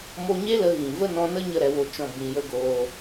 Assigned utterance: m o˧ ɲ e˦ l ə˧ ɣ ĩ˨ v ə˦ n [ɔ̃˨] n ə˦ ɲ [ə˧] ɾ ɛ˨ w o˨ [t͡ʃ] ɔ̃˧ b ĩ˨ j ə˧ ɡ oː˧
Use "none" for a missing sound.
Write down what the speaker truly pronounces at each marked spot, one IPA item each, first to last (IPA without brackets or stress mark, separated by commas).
ɔ̃˧, ə˧, t͡ʃ